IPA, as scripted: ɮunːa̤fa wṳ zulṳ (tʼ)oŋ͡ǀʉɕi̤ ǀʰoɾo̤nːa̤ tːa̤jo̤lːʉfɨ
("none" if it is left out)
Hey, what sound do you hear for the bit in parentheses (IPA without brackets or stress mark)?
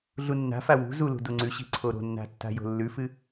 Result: d